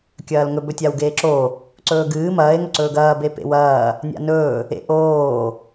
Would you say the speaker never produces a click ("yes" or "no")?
no